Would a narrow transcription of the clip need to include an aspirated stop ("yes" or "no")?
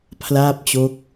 yes